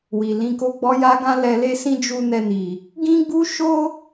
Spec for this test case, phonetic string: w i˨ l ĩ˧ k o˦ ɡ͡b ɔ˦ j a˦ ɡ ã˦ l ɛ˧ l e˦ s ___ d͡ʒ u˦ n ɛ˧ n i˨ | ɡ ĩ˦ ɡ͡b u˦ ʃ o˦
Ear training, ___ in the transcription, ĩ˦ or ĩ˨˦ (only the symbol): ĩ˦